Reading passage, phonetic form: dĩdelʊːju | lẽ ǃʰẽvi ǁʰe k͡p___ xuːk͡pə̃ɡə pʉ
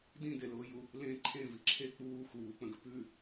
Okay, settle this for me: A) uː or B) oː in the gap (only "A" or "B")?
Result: A